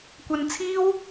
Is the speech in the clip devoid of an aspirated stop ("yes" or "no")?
no